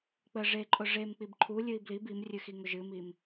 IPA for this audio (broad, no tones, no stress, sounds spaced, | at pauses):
k͡p ə ʐ e ǃʼ ʊ ʐ e m k͡p i b ǃʰ u lʲ ɨ i̯ b l i b i m rʲ ɨ x i ŋ ʊ ʒ ɨ m i m